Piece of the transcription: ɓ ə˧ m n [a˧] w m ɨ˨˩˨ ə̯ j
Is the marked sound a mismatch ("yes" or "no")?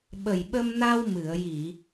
no